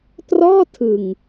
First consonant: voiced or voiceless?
voiceless